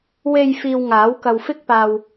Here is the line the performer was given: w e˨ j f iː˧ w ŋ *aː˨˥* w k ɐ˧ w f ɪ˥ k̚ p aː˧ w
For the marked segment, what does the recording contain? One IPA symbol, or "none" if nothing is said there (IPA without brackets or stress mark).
aː˨˥